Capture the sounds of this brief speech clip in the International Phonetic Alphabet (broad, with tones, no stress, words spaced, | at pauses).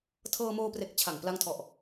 tʰɤː˧moː˧pre˨˩k̚ t͡ɕʰa˨˩ŋpla˧ŋtʰɔ˨˩ʔ